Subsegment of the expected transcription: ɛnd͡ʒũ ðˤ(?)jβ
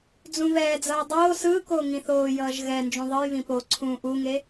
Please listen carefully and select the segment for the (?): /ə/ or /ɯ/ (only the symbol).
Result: ɯ